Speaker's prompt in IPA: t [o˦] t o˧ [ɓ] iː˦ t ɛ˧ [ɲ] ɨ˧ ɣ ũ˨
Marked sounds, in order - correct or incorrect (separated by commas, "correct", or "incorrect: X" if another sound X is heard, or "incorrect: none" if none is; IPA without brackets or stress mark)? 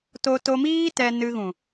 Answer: incorrect: o˧, incorrect: m, incorrect: n